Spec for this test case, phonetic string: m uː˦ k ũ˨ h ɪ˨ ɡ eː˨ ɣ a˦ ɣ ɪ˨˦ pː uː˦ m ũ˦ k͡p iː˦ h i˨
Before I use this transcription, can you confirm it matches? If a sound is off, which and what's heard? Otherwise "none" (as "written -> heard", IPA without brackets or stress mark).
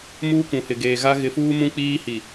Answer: pː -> f